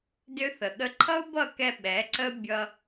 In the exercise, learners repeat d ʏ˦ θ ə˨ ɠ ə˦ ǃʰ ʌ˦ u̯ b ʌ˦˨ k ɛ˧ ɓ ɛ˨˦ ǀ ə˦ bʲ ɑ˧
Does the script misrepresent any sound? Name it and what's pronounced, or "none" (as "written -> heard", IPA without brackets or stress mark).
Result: ɑ˧ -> ʌ˧